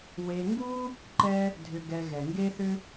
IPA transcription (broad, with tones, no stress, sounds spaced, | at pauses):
w e˧ ŋ ɡ u˥ | ǃ ɛ˥ | dʱ ʏ˧ ɡ ɛ˧ ɣ ɛ˩ ŋ ɡ e˥ θ ʏ˥